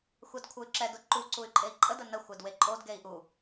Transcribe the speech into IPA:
xʷɛdkʷʰəy̯ǁɛ dʊǃu ǀuy̯ǃʼei̯ǃʼə dənə xʷɛdweǃʼod ɡei̯ʔu

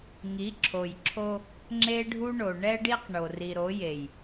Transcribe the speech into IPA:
ŋi˨˦ǁʰo˨jǁʰo˦ | ŋ͡ǁe˦ɖʱu˦ɳo˨ ɳɛ˦ɖi˦q ɳo˨ri˨ɾo˨˦je˨j

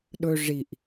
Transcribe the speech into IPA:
ɗɵ ʐiʔ

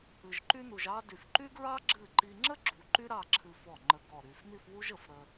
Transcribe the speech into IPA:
ɨ˧ʒǃy˥nu˧ʒ ɑ˥ dy˧˩fǃy˥ɡɹɑ˥ ɡ͡ǁɨ˥˧ ǃi˧ŋ͡ǁə˥ɡ͡ǁu˩˧ ǃy˥ɾɑ˥˧ǁʰɨ˧ fɔ˧˩ŋ͡ǃə˧˩ ɡɔ˧˩ɾy˧˩fn̪i˥˧fwu˥ʒ ə˧˩f ɾə˧

